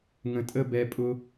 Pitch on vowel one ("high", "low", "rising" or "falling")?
low